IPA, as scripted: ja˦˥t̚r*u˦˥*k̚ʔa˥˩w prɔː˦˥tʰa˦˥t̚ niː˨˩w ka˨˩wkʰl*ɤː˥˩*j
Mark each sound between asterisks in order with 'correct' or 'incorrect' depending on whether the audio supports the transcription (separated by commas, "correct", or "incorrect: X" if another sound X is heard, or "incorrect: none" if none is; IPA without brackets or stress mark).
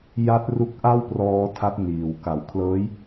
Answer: correct, incorrect: ɤː˦˥